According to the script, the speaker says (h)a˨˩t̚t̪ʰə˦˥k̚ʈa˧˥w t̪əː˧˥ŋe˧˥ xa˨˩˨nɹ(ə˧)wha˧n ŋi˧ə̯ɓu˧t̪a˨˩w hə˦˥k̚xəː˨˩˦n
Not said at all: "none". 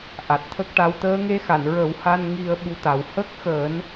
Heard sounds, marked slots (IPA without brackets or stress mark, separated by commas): ʔ, ə˨˩˦